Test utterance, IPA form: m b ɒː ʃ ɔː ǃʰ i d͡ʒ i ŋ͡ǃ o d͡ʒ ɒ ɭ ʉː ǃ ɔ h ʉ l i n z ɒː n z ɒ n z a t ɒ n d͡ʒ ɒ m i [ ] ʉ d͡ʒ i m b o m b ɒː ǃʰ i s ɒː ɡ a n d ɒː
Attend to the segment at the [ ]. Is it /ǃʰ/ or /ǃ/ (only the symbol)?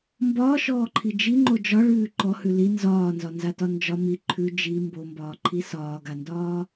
ǃʰ